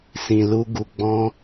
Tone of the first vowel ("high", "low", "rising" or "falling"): low